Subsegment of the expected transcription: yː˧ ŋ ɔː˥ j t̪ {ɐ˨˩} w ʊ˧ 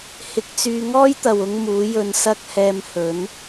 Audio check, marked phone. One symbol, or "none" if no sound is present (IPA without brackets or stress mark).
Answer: ɐ˨